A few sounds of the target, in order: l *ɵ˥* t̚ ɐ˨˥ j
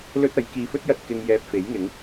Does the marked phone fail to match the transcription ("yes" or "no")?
no